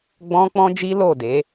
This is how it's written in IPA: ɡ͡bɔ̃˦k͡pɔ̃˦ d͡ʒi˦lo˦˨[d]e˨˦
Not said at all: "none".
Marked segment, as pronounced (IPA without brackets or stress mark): d